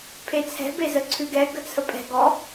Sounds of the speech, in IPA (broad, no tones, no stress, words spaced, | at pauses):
pʰet͡sʰɛ̤ bezəǀʰʉɡɛ ɡət͡sʰəpʼɛ̤ ɡɔ